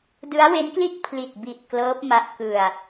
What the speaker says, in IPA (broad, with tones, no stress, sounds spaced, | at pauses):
d ɯ˦˥ a̯ w e˦˥ n k l i˥˩ t̚ pʰ l i˨˩ t̚ b i˨˩ ʔ k l ɤː˦˥ p̚ m a˦˥ ʔ k ɯ˧ a̯